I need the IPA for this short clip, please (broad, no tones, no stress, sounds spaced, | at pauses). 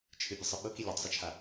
t͡ʃʰ ɨ bʲ ɨ sˤ i ɓ ʊ k i lʲ ʊ tˤ sˤ i t͡ʃʰ a